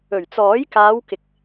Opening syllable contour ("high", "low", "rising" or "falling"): low